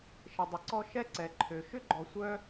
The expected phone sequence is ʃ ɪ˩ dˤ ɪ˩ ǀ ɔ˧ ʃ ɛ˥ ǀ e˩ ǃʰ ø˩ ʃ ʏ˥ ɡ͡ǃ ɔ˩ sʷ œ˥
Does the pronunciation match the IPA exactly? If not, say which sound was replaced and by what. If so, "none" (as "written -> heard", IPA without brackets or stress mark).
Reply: e˩ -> ɛ˩